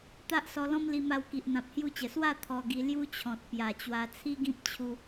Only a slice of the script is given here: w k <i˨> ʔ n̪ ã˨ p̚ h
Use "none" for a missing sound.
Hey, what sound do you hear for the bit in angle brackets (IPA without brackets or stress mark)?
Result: i˨